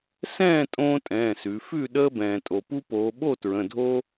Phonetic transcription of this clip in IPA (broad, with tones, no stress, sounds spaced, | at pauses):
s ɛ̃ː˥˨ tʼ õː˦ tʼ ɛ̃ː˩˧˩ s ʉ˩˧ f ʉ˥˨ ɗ əː˦ b ɛ̃ː˩ tʼ o˩ p u˦ p oː˩˧ ɓ o˥˨ t ɹ ə̃˩˧˩ dʱ o˦